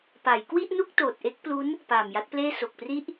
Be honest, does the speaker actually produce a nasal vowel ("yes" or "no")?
no